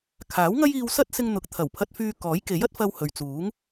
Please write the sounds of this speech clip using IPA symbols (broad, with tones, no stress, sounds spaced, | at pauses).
kʰ aː˨˥ w ŋ ɐ˥ j iː˧ w s ɐ˥ t̚ s ɪ˧ ŋ n̪ ʊ˨ k̚ t̪ʰ ɐ˨˩ w pʰ ɐ˧ t̚ f yː˧ k ɔː˨˥ j k e˨˥ j ɐ˥ t̚ f ɐ˧ w h ɵ˨ ɥ t͡s uː˨˥ ŋ